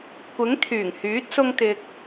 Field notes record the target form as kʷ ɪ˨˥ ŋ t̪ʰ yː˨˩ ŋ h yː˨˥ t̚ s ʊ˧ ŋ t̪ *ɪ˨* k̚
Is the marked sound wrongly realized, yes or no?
no